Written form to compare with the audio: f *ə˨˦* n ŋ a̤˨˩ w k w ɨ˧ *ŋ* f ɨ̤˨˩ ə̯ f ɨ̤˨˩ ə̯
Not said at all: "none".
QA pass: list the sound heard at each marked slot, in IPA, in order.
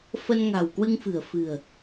ə˧, ŋ

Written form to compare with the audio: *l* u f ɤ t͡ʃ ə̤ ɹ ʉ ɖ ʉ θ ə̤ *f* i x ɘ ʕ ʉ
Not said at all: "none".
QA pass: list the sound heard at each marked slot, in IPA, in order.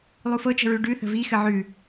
lˠ, v

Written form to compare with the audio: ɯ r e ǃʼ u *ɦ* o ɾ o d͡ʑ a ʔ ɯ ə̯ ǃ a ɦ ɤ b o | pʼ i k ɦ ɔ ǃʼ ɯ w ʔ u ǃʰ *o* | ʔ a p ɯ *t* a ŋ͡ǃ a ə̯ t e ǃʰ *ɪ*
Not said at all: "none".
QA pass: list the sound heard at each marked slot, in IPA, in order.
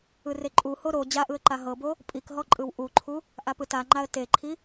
h, u, t, i

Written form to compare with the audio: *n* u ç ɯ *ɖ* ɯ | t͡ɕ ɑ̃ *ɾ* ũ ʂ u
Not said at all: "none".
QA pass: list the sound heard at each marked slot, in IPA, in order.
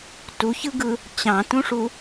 t, ɡ, t

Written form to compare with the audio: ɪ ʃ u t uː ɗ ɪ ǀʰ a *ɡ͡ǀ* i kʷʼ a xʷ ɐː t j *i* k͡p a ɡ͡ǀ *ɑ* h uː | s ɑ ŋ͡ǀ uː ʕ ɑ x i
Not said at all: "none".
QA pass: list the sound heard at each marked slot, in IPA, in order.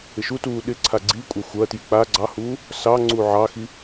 ɡ͡ǀ, i, ɑ

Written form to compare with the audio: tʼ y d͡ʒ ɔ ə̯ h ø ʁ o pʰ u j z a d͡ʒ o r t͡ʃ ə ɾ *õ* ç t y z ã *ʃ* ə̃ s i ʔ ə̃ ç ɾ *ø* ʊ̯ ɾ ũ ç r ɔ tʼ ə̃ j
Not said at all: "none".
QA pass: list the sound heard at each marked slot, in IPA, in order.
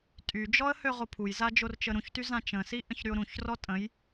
ũ, t͡ʃ, y

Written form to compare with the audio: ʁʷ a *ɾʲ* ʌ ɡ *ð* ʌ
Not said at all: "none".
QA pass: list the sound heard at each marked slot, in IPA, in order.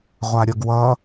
ɾʲ, w

